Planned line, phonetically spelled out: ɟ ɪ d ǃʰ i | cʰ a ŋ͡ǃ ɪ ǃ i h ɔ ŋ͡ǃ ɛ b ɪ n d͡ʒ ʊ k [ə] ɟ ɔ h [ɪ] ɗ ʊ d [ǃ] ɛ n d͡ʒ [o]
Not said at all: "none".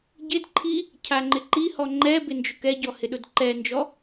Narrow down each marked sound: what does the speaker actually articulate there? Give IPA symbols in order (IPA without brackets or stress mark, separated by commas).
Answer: ɛ, ɪ, ǃ, ɔ